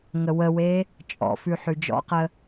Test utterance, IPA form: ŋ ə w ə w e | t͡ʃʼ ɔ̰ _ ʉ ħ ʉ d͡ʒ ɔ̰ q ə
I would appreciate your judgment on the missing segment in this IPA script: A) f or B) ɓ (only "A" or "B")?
A